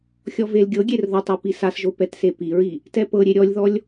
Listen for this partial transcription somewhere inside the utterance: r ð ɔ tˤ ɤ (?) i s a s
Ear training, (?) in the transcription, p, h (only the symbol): p